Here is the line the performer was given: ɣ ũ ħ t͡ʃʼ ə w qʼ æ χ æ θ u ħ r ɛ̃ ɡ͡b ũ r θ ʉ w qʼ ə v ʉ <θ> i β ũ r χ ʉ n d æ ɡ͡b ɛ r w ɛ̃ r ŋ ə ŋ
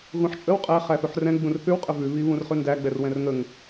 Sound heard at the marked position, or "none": β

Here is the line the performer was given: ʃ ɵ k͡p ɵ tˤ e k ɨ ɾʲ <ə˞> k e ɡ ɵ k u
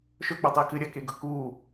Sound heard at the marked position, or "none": ɐ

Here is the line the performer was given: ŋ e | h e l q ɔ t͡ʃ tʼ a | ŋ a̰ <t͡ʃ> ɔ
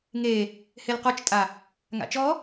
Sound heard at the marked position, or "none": t͡ʃ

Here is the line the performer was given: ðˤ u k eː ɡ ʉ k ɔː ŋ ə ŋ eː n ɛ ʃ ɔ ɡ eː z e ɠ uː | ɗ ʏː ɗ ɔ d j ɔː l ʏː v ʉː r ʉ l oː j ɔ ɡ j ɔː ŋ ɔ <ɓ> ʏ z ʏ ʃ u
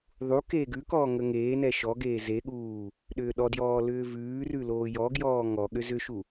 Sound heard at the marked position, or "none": ɠ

